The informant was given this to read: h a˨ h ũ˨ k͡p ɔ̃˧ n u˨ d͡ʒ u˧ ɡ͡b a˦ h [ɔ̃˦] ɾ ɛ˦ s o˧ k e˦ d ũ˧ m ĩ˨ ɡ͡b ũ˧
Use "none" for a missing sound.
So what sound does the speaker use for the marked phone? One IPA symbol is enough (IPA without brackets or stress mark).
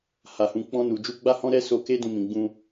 ɔ̃˦